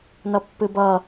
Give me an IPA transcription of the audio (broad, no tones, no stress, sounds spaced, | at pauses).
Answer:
n ʌ pː ɨ b ʌ